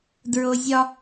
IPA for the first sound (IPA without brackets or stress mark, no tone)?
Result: d